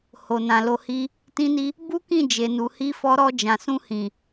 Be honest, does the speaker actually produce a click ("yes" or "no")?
no